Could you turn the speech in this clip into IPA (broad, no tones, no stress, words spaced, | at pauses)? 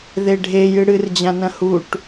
ðeɖʱe jɨɽɨrd͡ʑãnɐ̃ huʈ